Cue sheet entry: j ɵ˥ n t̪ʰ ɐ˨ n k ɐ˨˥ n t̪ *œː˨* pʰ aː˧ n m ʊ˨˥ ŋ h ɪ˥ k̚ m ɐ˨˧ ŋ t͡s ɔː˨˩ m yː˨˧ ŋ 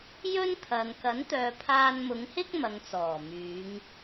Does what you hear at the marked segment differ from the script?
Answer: no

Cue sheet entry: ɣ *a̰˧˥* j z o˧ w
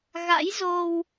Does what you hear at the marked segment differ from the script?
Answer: no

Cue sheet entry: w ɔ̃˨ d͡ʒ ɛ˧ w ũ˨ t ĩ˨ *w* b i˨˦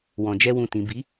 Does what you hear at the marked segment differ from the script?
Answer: yes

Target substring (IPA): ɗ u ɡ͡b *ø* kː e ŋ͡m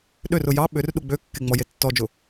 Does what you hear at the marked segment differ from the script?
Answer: no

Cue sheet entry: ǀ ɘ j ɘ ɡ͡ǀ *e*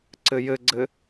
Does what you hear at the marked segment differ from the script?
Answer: yes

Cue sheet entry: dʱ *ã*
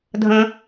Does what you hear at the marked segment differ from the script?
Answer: yes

